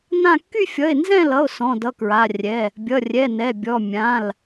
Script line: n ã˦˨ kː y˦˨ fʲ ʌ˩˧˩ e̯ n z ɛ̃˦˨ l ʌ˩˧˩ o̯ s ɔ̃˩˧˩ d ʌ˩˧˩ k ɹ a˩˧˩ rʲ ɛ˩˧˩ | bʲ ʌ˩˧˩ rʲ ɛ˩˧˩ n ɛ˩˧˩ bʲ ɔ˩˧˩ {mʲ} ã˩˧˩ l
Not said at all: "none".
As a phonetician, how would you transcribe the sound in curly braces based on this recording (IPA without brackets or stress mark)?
mʲ